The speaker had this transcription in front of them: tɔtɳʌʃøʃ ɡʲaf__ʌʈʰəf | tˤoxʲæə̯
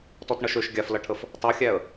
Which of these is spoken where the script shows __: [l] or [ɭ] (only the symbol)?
l